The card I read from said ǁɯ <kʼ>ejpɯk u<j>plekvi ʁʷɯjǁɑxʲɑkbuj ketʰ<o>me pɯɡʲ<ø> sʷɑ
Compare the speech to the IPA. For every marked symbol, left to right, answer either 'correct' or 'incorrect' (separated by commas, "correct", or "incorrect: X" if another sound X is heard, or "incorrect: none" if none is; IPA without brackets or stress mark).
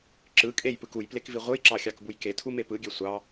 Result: correct, correct, incorrect: u, correct